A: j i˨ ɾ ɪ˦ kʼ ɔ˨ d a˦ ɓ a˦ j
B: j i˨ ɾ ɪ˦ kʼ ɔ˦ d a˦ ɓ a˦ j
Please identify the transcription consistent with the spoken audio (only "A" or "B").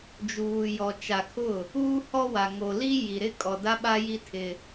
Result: A